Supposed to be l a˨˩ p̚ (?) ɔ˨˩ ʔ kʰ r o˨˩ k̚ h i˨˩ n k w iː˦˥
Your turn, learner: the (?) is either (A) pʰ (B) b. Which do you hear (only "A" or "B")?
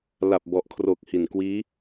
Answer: B